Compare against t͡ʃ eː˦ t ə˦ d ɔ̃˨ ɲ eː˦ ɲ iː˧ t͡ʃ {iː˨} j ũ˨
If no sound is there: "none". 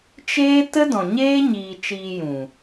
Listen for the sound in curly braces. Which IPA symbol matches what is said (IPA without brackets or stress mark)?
iː˧